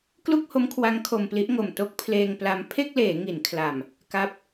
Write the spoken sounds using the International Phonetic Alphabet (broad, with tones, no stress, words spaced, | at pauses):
klu˥˩k̚ho˦˥mkʰwa˦˥ŋ kʰo˧mpli˦˥ʔŋo˨˩m to˥˩k̚ pʰleː˧ŋpla˧m pʰe˥˩k̚leː˩˦ ŋi˩˦nkʰla˨˩m | ka˦˥p̚